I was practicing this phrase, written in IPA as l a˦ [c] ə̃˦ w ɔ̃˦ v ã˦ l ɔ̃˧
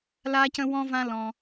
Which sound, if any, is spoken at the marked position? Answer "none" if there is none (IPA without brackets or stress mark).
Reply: c